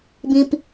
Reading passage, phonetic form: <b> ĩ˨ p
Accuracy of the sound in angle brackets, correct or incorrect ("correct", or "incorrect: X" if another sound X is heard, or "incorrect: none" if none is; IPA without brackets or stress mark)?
correct